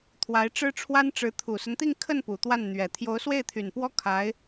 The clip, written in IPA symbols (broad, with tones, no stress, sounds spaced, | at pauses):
t̪ʰ w a˧˥ ɪ̯ ʈ͡ʂ ɻ̩˥ ʈ͡ʂʰ w a˥ n ʈ͡ʂ ɻ̩˧˥ t̪ʰ u˨˩ s ə˦ n t̪ i˥˧ ŋ kʰ ə˥˩ n p u˨˩ t̪ w a˥˩ n n̪ ɥ ɛ˨˩ t̪ʰ j o˧˥ ʊ̯ s w e˥˩ ɪ̯ t̪ʰ y˨˩ n p w ɔ˥ kʰ a˧˥ ɪ̯